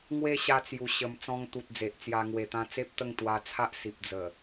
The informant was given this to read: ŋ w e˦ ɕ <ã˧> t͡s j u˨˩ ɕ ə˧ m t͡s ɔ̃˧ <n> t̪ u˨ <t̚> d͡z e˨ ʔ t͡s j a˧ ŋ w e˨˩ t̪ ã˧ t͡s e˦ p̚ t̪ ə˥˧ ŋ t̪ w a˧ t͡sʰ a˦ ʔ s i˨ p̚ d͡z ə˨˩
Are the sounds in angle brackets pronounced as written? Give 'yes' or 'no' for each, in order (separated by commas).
no, no, yes